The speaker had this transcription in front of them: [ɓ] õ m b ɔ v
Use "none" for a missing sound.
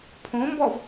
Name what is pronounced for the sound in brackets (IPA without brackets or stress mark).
pʰ